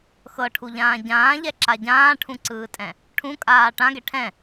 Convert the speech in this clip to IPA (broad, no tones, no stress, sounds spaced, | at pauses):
x ɤ ʈʰ u ʎ ãː ɟ ãː ʎ ɛ ǁ a ɟ ãː ʈʰ ũ ǀ ɯː tʼ ɛ̃ | ʈʰ ũ kʼ aː ʈ ã ɡ ɛ ʈʰ ɛ̃